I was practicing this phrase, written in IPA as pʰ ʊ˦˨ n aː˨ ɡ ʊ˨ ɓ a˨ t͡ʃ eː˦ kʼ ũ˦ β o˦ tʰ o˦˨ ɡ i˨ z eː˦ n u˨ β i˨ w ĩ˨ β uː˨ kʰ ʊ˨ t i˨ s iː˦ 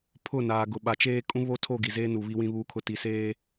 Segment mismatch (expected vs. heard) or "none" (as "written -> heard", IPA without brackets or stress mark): iː˦ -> eː˦